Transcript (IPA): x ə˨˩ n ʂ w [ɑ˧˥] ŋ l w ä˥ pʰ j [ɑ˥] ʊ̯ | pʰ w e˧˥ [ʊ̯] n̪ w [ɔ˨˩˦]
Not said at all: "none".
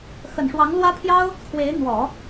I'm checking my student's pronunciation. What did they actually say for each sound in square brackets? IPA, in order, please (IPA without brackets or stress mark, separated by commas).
ɑ˧˥, ɑ˥, ɪ̯, ɔ˨˩˦